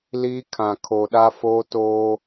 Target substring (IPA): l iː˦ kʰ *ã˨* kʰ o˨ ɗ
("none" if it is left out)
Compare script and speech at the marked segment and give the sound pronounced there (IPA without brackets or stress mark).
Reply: ã˨